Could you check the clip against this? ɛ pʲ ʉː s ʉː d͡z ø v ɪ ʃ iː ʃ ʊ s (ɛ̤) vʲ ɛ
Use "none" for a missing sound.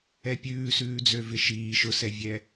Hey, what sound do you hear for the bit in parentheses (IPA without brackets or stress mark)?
ɛ